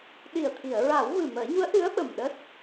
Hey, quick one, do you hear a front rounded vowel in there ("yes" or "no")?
no